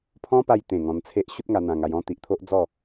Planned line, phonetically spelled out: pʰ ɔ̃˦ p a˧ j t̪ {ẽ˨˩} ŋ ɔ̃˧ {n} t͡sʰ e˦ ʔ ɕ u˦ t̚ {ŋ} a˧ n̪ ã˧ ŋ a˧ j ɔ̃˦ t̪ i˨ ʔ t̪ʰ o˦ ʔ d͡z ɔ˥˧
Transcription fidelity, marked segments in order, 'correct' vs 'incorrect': correct, correct, correct

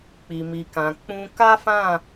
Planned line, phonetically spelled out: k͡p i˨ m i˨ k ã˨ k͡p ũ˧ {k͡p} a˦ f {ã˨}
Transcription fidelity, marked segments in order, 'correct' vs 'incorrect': incorrect: k, incorrect: ã˦˨

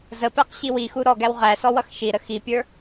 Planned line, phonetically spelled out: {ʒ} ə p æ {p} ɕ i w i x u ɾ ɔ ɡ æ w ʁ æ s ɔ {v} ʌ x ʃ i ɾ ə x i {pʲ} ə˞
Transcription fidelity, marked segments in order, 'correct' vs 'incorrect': incorrect: z, incorrect: q, incorrect: w, correct

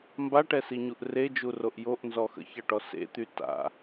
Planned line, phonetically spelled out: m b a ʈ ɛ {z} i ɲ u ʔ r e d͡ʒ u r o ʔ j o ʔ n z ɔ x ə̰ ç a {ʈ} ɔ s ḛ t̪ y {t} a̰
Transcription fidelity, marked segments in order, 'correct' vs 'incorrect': incorrect: s, correct, correct

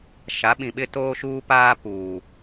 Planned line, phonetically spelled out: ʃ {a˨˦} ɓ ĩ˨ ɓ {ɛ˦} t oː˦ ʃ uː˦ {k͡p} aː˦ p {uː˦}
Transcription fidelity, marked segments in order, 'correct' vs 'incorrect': correct, incorrect: ɪ˦, incorrect: p, incorrect: uː˨

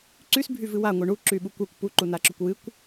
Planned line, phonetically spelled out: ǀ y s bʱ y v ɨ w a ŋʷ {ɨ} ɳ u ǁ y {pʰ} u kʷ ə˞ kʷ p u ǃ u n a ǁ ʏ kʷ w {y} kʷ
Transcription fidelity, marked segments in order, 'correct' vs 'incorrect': correct, incorrect: ɓ, incorrect: ɨ

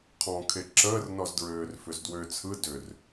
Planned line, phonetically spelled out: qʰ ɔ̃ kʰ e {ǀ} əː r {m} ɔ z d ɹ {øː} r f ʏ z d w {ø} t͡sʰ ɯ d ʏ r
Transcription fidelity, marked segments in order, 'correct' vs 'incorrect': incorrect: ǁ, incorrect: n, correct, correct

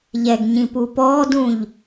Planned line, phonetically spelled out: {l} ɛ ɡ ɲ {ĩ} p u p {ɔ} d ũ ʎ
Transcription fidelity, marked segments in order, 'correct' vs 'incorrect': incorrect: ʎ, correct, incorrect: ɔː

